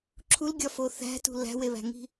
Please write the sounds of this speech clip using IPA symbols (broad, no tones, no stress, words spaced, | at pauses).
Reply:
ǁʰulɡʲɒfo θæ̤tṳ læ̤weβæ̤ŋi̤